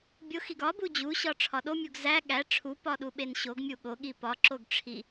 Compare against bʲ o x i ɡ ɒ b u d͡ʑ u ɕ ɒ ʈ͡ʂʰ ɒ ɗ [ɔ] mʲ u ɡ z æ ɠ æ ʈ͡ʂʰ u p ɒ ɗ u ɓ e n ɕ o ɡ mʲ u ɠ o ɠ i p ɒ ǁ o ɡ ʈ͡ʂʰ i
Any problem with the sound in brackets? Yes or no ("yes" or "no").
yes